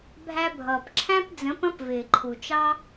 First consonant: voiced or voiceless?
voiced